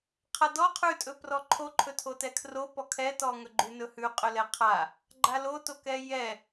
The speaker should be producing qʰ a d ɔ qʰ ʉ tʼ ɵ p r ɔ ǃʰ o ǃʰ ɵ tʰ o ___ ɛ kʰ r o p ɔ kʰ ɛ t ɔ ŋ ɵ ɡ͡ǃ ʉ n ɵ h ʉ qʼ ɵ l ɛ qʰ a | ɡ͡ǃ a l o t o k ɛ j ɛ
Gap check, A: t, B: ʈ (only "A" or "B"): A